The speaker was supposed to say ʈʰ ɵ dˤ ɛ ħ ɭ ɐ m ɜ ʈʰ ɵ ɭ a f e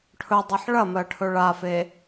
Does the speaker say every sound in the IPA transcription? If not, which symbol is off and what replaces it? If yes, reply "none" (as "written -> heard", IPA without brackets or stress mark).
none